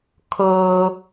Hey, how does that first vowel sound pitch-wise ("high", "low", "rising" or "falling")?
high